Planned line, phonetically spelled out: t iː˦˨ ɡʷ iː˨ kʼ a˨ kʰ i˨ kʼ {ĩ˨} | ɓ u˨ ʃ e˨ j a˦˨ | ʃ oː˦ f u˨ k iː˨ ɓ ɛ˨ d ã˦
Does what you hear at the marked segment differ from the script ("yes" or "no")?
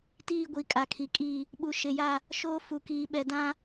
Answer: yes